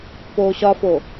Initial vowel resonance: oral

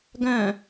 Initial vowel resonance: nasal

